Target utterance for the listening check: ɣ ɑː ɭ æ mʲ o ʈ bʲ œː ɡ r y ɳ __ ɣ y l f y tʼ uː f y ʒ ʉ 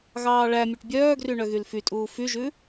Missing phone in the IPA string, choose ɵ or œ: œ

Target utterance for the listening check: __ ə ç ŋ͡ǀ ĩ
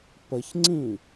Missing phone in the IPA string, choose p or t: p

